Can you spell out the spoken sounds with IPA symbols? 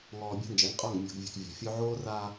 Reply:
ŋɔː˨ bʲa̤˦nd͡ʒɛ˨˦ŋqʼɔ˦˨ŋ mʲo̤˨ɡ vʲo̤˨k vʲa̤˨fʲo˦ ʕoː˦raː˦

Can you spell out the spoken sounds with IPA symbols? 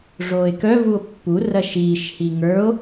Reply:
ʐoːe̯kœ vuo̯pːu rɐʃiːʃ hiŋə˞o̯

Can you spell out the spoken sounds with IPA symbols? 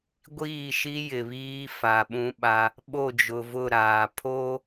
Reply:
ɡʷiː˦˨ʃi˦ jɪ˨βiː˦fa˨ɓũ˦ ɓa˦ | ɓo˦˨d͡ʒʊ˨vʊ˦˨ ɾaː˨ pʰoː˦

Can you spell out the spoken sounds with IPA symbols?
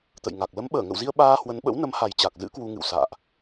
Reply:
t̪ə̰˧˨jŋa˨˩k̚ lə˨˦mɓəː˧˩ŋə̰˧˨wzi˧ə̯ ɓaː˧hwə˨˦nɓə̰˧˥w nə˨˦mha˨˩j t͡ɕa˨˩k̚zɨ̰˧˥ kwu˧ŋɨ̰˧˨wsa̰ː˧˨ʔ

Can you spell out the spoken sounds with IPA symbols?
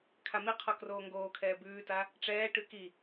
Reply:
kʰamiqʰɔ kroːŋɡoːkʰɛː bʉːta | ʈ͡ʂɛːʈʉ ki

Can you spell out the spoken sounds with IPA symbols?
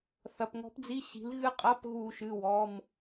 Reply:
θɐ˩˧˩pŋɔ̤˧˥pd͡zi˧˥˧ɕi̤˩˥l ɣɨ˧˥ qʼɐ˧˥˧pɣu˧˩˧ʃɨ˩˧˩ wɔ˩˧˩m

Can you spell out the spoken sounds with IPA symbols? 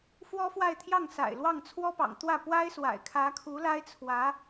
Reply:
fwɔ˥fwa˥˧ɪ̯t̪ʰjɑ˥˩ŋ sa̰˨˩ɪ̯lwɑ˥˩ŋ t͡sʰwɔ˥pɑ̰˨˩ŋt̪wä˥˩ pwa˥ɪ̯swa̰˨˩ɪ̯ kʰä˧˥kʰu˧˥la˥ɪ̯t͡sʰwä˧˥

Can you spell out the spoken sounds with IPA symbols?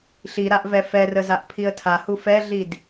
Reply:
ɬiɾaʔvɛ fɛrəzaʔ pʰiə̯tʰahu fɛɮid

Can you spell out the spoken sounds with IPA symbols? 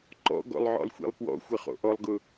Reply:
ǃɔ̰ɡɔ̰lˠʕɔ̰lˠxʷḭlˠ pwɔ̰xʷɪχo̰ ʔɔlˠɡʊ

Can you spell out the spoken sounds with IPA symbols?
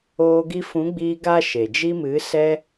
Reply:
oː˧ ɡi˧fũ˨˦ɡ͡biː˧ ɡa˦ʃe˨ d͡ʒi˧mɨ˨˦ sɛ˧

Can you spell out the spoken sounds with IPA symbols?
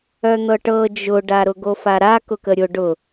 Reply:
œn̪ɤʈɤ d͡ʒʊɖaɾʊ ɡofaɾa kʊkəɾʲʊ ɖʊ

